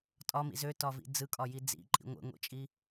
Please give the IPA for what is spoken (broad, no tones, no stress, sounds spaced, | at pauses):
tʼ ɒ m ḭ z ø t ɒ v ḭ d͡z ɯ kʼ ɒ j i d͡z ḭ ǃʼ ḭ ŋʷ ḛ ŋʷ ḭ t͡ʃʼ i